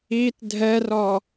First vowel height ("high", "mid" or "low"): high